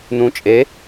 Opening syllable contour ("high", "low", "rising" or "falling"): rising